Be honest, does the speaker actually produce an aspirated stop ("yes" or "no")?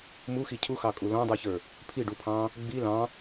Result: yes